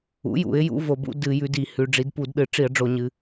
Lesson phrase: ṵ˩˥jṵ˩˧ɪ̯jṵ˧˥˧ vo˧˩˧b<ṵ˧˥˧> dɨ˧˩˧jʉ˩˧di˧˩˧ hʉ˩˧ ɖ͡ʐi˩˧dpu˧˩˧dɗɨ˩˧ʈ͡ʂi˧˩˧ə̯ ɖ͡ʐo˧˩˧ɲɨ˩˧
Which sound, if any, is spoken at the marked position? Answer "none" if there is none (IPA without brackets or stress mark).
ṵ˧˥˧